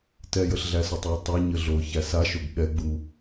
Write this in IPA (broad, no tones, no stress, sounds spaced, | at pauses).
t ɛ j ə ɬ ɮ æ s o tˤ j ə tˤ æ ɲ ə ɮ o ç æ s a ʃ o ɡ ɠ ɛ ɡ͡b u